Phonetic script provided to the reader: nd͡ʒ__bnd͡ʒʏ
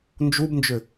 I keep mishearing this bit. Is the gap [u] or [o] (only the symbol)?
u